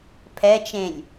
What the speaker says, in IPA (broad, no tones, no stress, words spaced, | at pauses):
pʰɛt͡ʃẽlʲ